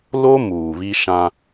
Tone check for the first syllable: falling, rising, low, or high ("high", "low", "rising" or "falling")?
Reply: high